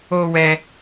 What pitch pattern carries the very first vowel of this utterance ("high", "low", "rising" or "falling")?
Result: high